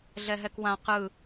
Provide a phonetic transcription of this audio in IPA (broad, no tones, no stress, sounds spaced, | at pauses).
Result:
ɮ ɛ ɦ ɛ k w ã q ɯ